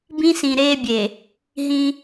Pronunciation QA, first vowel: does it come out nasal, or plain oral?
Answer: nasal